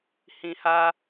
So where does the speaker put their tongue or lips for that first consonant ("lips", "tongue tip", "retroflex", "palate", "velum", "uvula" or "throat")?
throat